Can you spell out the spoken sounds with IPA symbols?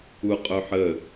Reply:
u qʼ ɵ ħ ə

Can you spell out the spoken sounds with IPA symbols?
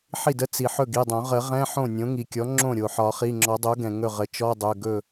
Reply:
ħ i˥˩ d ə˧˥˧ t͡s i˩ ħ ɵ˥˩ ɡ i˩˧˩ dˤ õ˨˩˦ ʁ ə˨˩˦ ʁ ɛ̃˧˥˧ ħ õ˥˩ nʲ õ˩˥ ŋ i˩ kʲ ɔ˩˥ ŋ͡ǁ õ˥˩ ɾʲ o˩ ħ ɒ˨˩˦ χ i˩˧˩ ŋ͡ǁ ɔ˨˩˦ dˤ o˩˥ ɡ ɛ̃˩ ŋ ɵ˥˩ ʁ ə˩˥ t͡ʃ ɔ˧˥˧ dˤ ɵ˩˧˩ ɡ ɵ˥˩

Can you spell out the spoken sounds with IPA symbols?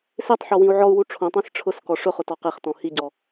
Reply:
s e tˤ ħ ɔ w ĩ u̯ ʕ ɔ u̯ w u ʈ͡ʂʰ õ tˤ ẽ s ʈ͡ʂʰ ʊ s k ɔ ʂ ʊ χ ʊ t ɔ q e χ t ɔ̃ h i ɟ ɔ

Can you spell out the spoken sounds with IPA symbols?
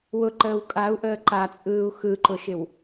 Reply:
w ʊ ǃ əː w kʼ a u̯ ʔ əː ǃ a t͡sʼ ɯː u̯ x ɯ ǃ ʊ ʃ ɪ w

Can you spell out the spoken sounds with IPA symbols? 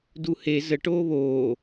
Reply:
d u h e z ə ʈ oː β oː

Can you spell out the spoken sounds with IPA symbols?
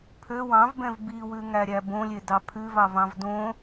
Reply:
pʰ ø w ɑ̃ v b ɛ̃ v b i w ʉ ŋ æ ɾʲ æ b õ lʲ e d ɑ pʰ ʉ v ɑ v ɑ̃ v d õ

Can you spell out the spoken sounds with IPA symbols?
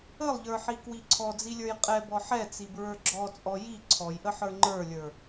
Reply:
ə lˠ ʎ ə˞ ħ i k w i ǀʰ ɔ d͡z i lʲ ə˞ j qʼ ɛ b ɔ ħ ɛ t͡s i b ɹ ə˞ ɡ͡ǁ ɔ t͡sʼ ɔ j i ǀʰ ɔ j ʔ ə ħ ə˞ ŋ͡ǃ ə˞ lʲ ə˞

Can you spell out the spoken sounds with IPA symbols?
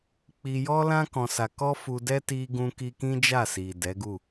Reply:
k͡p i˧ j ɔ˦ l ã˦ k ɔ̃˧ s a˧ k ɔ˦ f u˧ d ɛ˦ t i˧ ɡ ũ˧ k i˧ k ĩ˦ d͡ʒ a˦˨ s i˨ d ɛ˨˦ ɡ u˦˨

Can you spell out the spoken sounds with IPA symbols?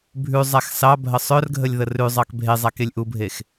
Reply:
bʱ ʉ zˤ a x s ɑ bʱ ə sˤ œ r ɡʱ ə lʲ ð ə r ʉ zˤ ɑ k bʱ e zˤ a k e lʲ ʔ u bʱ e x

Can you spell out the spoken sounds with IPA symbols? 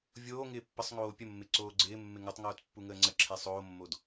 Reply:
vʲ oː ŋ ɪː pː ə sˤ ŋ oː pʲ ə mː ɪ ǀ oː ɡ͡ǀ ɪː mː ɪ ŋ u tˤ ŋ oː t pː u ŋ əː ŋ͡ǀ ə ǁʰ e sˤ oː mː o d

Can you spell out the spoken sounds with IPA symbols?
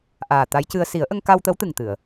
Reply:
ʔ aː˨˩ t̪ a˧˥ j c ɨ˧ ə̯ s i˨˩˦ ə̯ ʔ ə˧ ŋ k a˧ w t̪ ə˧˥ w t̪ ɨ˨˩ ŋ t̪ ɨ˨˩˨ ə̯

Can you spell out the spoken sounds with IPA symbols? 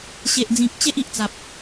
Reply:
ɕ e˨ ʔ d͡z ĩ˨ k̚ t͡ɕ e˦ ʔ i˨ ʔ t͡s a˨ p̚

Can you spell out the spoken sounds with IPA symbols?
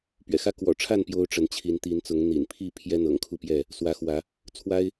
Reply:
p ɥ ɛ̰˨˩ x ä˦ k w ɔ̰˨˩ ʈ͡ʂʰ a˥˨ n p j o˦ ʊ̯ ʈ͡ʂ ə˨˦ n t͡ɕʰ i˨˦ n t̪ i˨˦ n t͡s ʊ˨˦ ŋ n̪ ḭ˨˩ n pʰ i˥˨ pʰ j ɛ˦ n̪ ɤ̰˨˩ ŋ kʰ u˥˨ p j ɛ˥˨ | s w ä˨˦ x w ä˨˦ | t͡sʰ w a˦ ɪ̯

